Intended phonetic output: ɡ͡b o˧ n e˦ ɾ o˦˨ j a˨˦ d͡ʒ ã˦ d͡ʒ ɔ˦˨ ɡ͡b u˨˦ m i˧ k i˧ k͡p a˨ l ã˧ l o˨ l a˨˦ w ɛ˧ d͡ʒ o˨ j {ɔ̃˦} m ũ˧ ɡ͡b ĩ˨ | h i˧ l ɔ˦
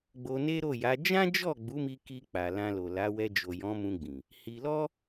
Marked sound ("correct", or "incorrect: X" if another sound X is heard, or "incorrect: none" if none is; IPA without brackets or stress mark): incorrect: ɔ̃˨˦